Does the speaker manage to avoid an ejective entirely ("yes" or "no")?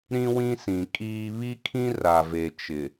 no